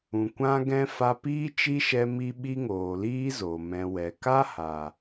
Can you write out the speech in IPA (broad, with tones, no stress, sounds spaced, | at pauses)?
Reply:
ũ˨ kʷ ã˦ ɡ ɛ̃˦ f a˧ p iː˦ t͡ʃ i˦ ʃ ɛ˧ m i˦ ɓ i˦ ŋ oː˨ l iː˦ z o˨ m ɛ̃˨ w ɛ˨ k a˦ h a˨